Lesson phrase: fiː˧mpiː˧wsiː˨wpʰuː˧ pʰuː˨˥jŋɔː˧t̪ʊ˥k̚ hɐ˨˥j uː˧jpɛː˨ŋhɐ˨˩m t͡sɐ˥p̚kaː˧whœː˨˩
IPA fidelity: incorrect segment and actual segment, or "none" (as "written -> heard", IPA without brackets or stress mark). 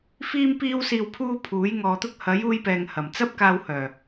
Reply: none